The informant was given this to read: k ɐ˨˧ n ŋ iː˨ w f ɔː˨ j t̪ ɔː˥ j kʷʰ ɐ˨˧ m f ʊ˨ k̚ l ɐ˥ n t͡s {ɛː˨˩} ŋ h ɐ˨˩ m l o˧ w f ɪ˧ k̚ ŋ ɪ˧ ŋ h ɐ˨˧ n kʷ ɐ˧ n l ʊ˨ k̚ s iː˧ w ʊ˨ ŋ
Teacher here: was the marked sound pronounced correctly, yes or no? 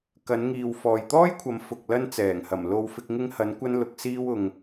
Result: yes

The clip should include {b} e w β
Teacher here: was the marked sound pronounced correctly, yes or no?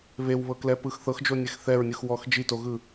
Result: no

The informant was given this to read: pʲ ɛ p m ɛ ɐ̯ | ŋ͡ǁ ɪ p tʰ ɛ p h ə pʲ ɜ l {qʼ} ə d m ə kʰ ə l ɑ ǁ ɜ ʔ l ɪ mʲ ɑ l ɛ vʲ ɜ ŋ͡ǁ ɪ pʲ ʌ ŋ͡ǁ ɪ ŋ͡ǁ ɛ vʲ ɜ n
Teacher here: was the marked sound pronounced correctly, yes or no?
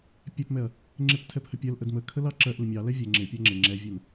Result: no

